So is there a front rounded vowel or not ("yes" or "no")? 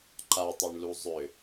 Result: yes